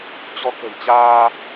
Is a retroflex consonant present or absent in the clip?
absent